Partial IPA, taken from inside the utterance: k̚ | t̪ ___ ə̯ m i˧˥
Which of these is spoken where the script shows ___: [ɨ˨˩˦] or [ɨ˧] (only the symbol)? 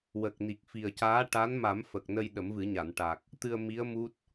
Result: ɨ˧